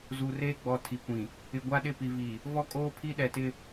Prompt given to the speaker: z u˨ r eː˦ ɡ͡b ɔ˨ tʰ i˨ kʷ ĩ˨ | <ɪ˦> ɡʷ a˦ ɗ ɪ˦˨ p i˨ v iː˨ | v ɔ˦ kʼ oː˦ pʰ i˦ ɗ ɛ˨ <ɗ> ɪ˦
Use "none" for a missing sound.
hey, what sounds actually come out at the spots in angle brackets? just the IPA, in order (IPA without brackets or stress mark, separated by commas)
ɪ˨, t